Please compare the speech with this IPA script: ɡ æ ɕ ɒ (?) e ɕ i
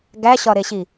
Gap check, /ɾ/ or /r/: ɾ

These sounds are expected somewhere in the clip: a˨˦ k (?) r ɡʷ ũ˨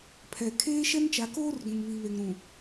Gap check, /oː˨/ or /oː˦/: oː˦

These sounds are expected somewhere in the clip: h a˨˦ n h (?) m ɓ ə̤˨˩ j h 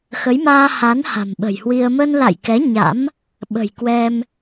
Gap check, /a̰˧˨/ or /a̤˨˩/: a̤˨˩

